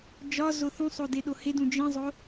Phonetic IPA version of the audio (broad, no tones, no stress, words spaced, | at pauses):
d͡ʒɒ zoθũsˤo deɗohedũ d͡ʒĩzˤo